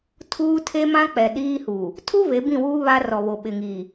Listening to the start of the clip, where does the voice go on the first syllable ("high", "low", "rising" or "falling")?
high